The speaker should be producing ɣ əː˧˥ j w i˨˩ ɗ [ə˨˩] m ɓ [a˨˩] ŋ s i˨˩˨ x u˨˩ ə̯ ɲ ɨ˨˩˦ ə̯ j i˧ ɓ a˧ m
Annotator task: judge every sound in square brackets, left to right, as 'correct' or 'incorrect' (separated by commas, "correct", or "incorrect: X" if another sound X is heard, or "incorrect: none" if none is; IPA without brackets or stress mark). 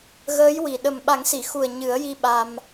correct, incorrect: a˨˩˦